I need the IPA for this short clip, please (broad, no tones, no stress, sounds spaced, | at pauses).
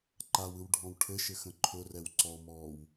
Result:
ǃ a w ɯ w ɖʱ ɔ̃ w ʈʰ ɘ ʃ ɘ x ə̃ ǃʰ ʊ r ɛ w ǀ ɔ m ɔː w